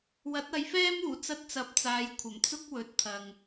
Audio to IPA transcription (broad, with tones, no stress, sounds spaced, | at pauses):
w ɐ˨˥ t̚ ɐ˨˧ j f ɛː˥ m uː˨˩ t͡s ɐ˥ t̚ t͡s ɐ˧ p̚ t͡s aː˨˧ j kʷʰ ɐ˨˩ m t͡s ʊ˥ k̚ w ɵ˨˥ t̚ t̪ʰ ɐ˨ ŋ